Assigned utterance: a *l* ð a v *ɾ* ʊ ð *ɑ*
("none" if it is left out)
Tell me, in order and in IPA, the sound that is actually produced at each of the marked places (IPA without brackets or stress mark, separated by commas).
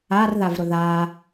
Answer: r, ɾ, a